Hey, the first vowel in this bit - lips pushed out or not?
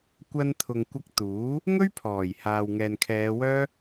no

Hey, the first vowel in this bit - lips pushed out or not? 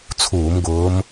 yes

